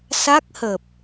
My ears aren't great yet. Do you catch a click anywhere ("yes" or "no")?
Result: no